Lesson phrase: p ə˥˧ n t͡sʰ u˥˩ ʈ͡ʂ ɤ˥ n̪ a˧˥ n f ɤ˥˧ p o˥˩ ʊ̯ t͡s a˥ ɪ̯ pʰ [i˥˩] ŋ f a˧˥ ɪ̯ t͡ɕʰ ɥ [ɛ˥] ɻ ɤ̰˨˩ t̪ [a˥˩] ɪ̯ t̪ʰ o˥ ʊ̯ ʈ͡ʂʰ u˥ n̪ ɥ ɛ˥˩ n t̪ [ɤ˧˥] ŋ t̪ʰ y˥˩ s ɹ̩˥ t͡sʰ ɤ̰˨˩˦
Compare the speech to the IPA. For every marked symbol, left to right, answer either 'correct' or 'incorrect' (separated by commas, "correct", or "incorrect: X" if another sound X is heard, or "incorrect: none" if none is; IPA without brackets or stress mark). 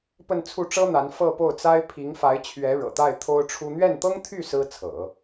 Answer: incorrect: i˧˥, incorrect: ɛ˧˥, correct, incorrect: ɤ˥